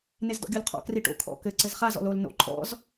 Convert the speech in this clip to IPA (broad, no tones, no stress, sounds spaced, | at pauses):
n e z d ɔ̰ ɡʲ o l qʰ ɔ̰ k r i ʈ o̰ kʰ ɔ̰ k ɘ ǀ ɘ z χ a z ɔ̰ l o l n o̰ ǃʰ ɔ̰ z